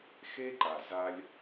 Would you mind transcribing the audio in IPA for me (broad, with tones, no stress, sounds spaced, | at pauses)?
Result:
x e˦ ǃ a˨ z a˦ lʲ